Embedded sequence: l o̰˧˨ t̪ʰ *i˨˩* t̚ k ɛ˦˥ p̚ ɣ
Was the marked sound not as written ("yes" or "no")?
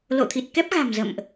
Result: no